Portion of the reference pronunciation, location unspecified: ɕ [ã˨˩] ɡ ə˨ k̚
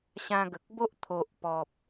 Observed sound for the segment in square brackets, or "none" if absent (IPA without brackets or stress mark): ã˧